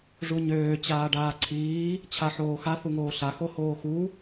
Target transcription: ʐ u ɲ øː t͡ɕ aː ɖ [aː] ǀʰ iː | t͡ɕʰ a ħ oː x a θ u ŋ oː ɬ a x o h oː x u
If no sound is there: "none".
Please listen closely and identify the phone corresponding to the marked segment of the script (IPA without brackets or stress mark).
aː